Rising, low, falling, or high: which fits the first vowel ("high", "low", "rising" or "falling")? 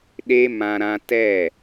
high